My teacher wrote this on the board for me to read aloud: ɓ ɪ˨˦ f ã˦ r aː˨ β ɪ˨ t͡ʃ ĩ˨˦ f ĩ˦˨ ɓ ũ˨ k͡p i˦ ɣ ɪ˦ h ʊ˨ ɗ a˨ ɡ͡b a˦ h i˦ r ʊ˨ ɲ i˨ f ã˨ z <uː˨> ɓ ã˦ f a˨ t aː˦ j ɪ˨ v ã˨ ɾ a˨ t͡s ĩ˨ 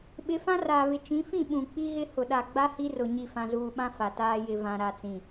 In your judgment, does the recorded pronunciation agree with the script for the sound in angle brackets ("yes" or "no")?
yes